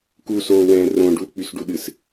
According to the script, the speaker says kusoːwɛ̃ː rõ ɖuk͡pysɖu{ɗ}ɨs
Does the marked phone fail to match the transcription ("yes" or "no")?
no